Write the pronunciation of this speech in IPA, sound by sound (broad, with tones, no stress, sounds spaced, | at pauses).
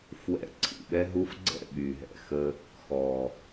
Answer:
f w ɛ̰˧ ǀʰ ḭ˨ ɓ ɛ˦ ɦ u˧ f ɡ͡ǀ ɛ̰˦˨ ɓ y˨ ɦ ɛ̰˨ x ə˧ | x ɔ˨